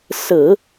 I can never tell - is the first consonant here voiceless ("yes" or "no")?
yes